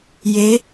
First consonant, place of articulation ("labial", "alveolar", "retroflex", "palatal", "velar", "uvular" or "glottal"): palatal